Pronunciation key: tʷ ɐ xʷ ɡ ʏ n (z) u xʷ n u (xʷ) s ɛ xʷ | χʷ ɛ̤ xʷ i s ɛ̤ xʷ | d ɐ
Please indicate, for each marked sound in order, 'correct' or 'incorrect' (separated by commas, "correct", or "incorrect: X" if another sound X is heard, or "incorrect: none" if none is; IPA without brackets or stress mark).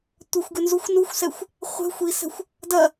correct, correct